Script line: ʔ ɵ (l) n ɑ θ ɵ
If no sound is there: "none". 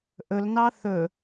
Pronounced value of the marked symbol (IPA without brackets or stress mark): l